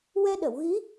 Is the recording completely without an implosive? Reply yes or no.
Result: no